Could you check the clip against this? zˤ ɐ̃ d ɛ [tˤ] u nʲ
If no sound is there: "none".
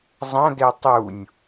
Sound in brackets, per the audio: tˤ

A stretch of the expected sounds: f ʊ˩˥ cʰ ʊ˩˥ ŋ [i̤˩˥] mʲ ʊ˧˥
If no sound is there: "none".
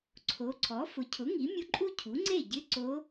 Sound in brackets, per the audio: i˩˥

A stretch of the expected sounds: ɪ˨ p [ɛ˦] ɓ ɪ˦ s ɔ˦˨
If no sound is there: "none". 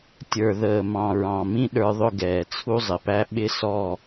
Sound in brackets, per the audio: æ˦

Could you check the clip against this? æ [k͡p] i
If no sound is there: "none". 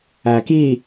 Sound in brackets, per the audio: k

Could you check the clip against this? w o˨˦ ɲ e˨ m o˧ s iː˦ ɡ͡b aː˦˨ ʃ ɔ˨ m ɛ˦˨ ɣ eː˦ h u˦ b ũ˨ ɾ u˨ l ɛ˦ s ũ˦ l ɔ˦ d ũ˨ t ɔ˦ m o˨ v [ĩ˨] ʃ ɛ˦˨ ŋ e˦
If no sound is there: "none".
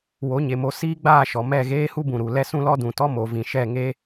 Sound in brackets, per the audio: ĩ˨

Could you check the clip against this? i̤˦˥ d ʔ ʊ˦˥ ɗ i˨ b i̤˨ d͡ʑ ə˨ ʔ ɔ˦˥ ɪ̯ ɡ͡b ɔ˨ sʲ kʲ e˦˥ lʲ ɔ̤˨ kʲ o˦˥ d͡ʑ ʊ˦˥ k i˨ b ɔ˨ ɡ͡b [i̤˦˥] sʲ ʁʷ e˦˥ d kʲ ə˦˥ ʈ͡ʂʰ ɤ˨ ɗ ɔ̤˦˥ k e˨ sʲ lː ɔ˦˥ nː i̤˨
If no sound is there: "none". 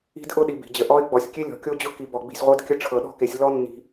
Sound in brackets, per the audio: i̤˨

